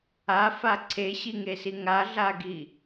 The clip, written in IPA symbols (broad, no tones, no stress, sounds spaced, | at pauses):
a f a ǀʰ e ɕ i ŋ e s i ŋ a ɮ a ɡ i